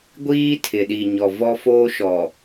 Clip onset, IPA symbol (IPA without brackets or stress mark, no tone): ɡʷ